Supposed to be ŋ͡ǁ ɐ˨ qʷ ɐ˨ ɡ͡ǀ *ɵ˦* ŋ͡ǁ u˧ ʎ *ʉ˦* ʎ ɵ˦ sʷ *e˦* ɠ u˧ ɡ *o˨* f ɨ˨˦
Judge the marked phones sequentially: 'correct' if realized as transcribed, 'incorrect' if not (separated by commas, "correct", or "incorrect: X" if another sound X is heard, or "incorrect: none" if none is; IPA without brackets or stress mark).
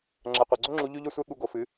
correct, correct, correct, correct